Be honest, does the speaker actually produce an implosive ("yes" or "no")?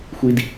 no